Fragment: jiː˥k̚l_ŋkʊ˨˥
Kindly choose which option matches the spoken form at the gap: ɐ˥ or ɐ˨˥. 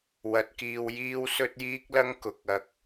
ɐ˥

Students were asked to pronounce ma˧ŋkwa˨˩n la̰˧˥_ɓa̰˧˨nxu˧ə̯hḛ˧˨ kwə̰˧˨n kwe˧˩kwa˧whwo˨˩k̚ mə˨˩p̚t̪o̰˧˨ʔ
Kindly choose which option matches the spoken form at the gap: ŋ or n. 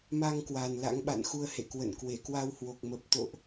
ŋ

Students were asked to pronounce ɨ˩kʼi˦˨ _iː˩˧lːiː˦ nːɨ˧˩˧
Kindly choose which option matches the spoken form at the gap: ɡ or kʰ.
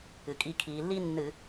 kʰ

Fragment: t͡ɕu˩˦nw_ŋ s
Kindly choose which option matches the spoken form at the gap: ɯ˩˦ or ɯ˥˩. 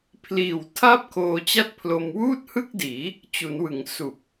ɯ˩˦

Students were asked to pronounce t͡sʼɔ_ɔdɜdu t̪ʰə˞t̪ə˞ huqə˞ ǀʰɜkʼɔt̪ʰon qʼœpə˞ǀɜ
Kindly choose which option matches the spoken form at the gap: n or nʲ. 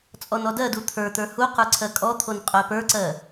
n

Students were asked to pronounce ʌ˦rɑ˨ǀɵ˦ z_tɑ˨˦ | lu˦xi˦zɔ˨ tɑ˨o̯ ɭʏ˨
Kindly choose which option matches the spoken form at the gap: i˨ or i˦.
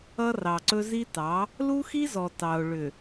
i˦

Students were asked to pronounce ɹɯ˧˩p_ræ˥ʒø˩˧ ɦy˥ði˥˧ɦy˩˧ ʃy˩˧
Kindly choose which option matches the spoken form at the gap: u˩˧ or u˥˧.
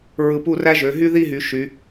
u˥˧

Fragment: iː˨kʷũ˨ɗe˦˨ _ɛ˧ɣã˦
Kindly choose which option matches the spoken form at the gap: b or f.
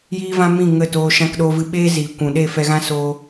f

